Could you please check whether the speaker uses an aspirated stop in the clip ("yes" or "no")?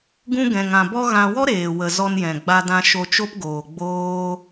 no